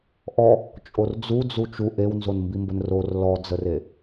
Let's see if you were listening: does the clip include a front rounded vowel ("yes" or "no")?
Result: no